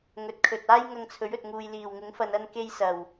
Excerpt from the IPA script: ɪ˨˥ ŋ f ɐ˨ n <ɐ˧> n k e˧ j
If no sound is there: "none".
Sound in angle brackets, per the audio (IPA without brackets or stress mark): ɐ˧